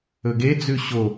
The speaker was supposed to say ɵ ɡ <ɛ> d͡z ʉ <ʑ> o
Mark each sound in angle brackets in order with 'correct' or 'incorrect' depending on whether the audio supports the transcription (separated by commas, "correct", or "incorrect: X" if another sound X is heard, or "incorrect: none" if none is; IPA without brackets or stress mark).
incorrect: e, incorrect: ɕ